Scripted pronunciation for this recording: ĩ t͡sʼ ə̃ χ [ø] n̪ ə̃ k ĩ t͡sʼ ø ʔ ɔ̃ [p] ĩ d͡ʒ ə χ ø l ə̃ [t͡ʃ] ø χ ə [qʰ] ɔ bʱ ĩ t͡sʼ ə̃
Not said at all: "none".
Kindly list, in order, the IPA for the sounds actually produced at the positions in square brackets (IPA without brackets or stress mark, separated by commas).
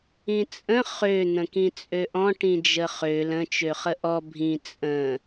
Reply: ø, ʈ, t͡ʃ, ʔ